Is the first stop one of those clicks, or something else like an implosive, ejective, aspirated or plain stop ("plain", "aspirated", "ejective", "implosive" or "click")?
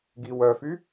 plain